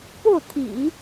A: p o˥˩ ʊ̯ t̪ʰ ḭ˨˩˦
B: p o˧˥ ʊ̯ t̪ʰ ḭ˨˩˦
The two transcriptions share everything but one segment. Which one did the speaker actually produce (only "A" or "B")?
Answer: A